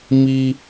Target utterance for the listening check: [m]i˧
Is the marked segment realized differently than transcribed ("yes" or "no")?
no